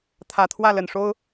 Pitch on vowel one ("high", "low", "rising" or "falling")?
low